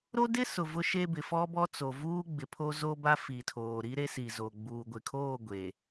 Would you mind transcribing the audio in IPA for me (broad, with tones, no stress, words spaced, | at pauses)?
ɾo˦dɪ˦sʊ˨ vʊ˦ʃe˦bɪ˨ fɔ˦bɔ˦ t͡so˨vuː˦ ɡ͡bɪ˨pʰo˦ zo˦ ba˦fi˨tʰoː˨ɾi˦ ɾe˦si˨zo˨ ɡ͡buː˨ɡʷɪ˨kʰoː˦˨ ɡʷe˨